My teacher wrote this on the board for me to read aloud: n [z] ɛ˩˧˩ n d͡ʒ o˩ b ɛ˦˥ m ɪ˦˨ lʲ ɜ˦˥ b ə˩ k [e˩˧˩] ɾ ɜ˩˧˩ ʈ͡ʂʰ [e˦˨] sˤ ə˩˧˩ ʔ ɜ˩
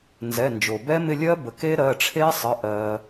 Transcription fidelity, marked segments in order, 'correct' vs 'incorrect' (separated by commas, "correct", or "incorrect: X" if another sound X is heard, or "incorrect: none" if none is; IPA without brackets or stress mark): correct, incorrect: e˦˥, incorrect: e˦˥